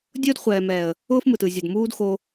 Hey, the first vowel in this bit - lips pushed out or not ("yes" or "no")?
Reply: yes